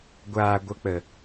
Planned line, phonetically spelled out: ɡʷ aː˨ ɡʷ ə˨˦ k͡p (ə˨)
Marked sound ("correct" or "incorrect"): correct